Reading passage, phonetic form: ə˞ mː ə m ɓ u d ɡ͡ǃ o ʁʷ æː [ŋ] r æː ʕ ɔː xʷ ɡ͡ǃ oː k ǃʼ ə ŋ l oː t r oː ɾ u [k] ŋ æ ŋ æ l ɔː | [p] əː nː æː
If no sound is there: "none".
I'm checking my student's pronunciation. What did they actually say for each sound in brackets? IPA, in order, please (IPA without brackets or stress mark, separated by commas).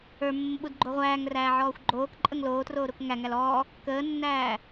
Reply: ŋ, k, k